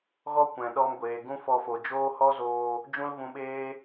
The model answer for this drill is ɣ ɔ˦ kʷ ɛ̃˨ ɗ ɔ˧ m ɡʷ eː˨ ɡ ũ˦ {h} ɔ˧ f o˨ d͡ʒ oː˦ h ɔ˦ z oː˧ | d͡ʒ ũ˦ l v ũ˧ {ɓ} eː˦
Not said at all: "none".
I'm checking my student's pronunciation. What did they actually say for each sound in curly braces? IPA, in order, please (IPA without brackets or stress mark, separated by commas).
f, ɓ